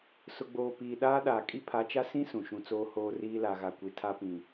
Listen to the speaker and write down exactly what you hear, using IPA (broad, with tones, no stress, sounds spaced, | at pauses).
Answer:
s ʊ˨ ɡ͡b oː˨ p iː˨ ɗ aː˦ ɗ aː˨ kʼ i˦ pʰ a˨˦ t͡ʃ a˦ s ĩ˦ s ũ˨ ʃ ũ˨ t͡s oː˦ h oː˦ r iː˦ l a˨ ɣ a˨ kʷ i˨ tʰ a˦ p ĩ˨